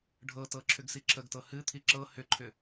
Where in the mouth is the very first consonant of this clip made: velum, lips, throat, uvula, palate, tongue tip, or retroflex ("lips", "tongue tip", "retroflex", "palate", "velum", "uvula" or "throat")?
retroflex